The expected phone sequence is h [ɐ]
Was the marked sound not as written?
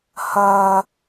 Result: no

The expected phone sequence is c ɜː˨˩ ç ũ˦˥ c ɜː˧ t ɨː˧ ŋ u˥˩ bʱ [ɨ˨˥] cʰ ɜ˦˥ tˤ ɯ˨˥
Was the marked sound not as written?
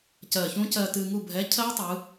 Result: yes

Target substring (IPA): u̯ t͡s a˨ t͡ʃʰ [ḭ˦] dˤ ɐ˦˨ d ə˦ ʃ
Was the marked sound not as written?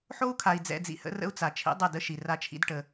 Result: no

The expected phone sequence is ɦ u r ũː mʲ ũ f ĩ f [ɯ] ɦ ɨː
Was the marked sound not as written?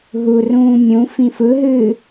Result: no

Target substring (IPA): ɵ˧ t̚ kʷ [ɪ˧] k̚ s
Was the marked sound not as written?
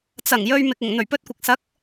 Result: yes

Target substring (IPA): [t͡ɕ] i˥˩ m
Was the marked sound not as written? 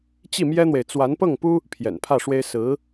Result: no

